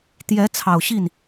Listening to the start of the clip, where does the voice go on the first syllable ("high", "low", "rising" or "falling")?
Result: rising